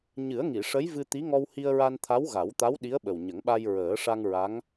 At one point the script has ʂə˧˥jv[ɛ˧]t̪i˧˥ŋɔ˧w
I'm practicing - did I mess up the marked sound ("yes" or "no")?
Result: yes